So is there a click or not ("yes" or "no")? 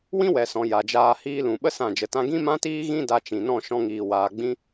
no